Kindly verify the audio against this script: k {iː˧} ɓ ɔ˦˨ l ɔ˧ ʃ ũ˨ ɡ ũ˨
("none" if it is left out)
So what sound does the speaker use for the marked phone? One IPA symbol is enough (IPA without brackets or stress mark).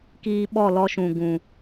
iː˧